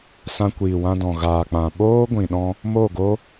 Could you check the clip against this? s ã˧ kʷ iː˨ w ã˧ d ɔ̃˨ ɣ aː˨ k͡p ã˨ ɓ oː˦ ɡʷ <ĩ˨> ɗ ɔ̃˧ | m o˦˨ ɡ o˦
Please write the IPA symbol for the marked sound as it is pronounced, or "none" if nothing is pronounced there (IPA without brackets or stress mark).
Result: ĩ˨